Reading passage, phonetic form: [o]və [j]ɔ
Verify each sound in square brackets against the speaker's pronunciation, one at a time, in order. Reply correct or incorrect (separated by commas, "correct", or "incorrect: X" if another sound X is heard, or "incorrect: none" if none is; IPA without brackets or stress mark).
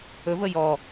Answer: incorrect: ɵ, correct